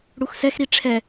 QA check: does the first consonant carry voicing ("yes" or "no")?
yes